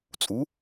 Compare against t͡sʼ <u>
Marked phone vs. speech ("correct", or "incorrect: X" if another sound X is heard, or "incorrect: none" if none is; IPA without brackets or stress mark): correct